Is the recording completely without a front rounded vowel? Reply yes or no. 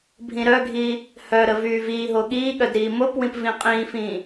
no